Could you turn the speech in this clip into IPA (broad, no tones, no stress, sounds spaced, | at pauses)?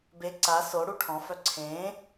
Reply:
b e ǀ a s o ɽ u ʈʰ ɔ̃ f œ ǀʰ ẽː